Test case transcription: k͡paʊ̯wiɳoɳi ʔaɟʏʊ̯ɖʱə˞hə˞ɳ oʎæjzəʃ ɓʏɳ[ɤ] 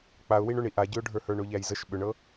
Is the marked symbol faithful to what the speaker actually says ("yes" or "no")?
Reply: yes